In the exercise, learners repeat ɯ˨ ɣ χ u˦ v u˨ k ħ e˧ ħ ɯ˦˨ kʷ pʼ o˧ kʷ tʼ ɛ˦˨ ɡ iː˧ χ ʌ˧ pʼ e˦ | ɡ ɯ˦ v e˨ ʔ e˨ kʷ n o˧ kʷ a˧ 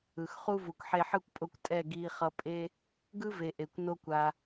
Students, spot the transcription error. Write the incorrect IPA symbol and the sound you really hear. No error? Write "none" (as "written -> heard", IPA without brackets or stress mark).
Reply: ɣ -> x